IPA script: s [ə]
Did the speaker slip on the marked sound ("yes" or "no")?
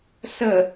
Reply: no